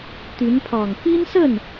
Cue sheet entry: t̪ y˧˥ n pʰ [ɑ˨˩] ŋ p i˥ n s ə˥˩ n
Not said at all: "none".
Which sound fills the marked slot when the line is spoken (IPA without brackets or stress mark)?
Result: ɑ˨˩